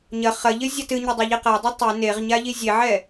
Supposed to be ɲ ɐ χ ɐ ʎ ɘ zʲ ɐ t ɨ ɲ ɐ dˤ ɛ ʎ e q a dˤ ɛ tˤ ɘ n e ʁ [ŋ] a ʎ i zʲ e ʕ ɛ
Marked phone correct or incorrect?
incorrect